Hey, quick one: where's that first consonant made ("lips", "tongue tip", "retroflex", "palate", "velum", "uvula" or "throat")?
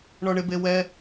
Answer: retroflex